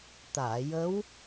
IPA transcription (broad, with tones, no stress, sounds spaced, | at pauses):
t̪ aː˨˩˨ j ə˧˥ w